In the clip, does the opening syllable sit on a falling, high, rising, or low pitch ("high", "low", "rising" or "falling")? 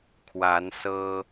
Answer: rising